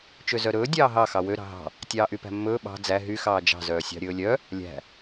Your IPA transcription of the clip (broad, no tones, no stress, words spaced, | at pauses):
t͡ʃøzœɾɵː dʲɑːɦɑ xɑwø ɾɑ̤ɦɑ̤ | tʲɑːʔypæ̤mːɵː ɓɑ̤ d͡zæ ɦy xɑːd͡ʒɑ̤ zœːsʲɑ̤ɾʲɵːlʲœ | lʲæ̤